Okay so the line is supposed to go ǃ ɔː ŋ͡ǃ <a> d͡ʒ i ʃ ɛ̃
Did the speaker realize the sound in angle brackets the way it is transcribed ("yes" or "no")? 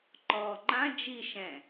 no